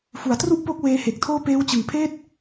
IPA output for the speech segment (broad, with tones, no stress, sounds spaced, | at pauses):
f u˩˦ a̯ t r u˥˩ ʔ p o˦˥ k̚ w eː˦˥ h e˨˩ k̚ tʰ oː˥˩ p eː˦˥ w t͡ɕ ɯ˨˩ ŋ pʰ eː˥˩ t̚